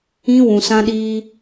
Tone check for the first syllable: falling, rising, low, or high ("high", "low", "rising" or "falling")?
high